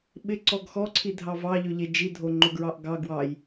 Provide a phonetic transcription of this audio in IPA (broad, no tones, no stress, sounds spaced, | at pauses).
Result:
ɓ ɪ ǀ ɔ ɡ x ɔ ǀʰ i dʱ ɑ v ɑ ʎ ø ʎ e d͡ʒ i dʱ o ŋ͡ǃ o ɡ ɹ ɑ ʔ ɡ ɑ ɡ w ɑ j